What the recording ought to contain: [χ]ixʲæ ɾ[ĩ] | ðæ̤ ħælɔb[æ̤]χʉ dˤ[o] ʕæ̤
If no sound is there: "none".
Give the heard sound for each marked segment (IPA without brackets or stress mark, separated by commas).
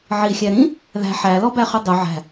ʕ, ĩ, æ, ɵ